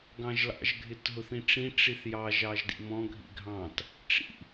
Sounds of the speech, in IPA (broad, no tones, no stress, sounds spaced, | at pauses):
ɡ ɑ̃ ʒ l ɑ̰ ʒ ɡʱ ɪ t ɦ ʊ θ ĩ ʈ͡ʂ ĩ ʈ͡ʂ i θ j ɑ ʒ ɑ ʒ d ḭ m ɔ̃ ɡʱ ḭ ɡʱ ɑ̃ t | ʈ͡ʂ ḭ